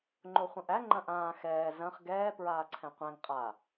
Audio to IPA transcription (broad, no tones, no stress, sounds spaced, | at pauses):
ŋ͡ǃ o χʷ ɐ̃ ʔ æ ŋ͡ǃ ɐ̃ ʔ ãː x ɛː z ɐ̃ χ ɡ ɛː p ɹ aː ǀʰ ɛ̃ qʷ æ̃ ŋ qʼ a